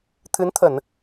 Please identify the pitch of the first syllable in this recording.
rising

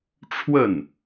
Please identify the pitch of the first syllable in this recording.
falling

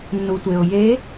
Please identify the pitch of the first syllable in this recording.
low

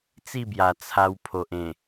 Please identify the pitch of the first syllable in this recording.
falling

